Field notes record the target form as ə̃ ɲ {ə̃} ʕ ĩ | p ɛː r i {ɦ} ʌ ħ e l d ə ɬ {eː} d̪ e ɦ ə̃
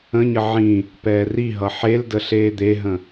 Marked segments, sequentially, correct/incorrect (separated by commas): incorrect, correct, correct